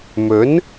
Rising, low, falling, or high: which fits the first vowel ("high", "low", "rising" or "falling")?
rising